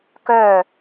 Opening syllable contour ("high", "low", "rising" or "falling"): falling